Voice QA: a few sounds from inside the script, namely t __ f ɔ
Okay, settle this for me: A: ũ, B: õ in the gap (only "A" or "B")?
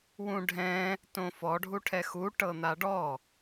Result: B